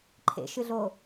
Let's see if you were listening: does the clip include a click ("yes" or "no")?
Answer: yes